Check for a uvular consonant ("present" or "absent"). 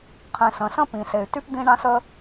present